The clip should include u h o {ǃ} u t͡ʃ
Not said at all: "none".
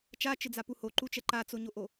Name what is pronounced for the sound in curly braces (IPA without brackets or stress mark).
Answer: ǃ